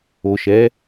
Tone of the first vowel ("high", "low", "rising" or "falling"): low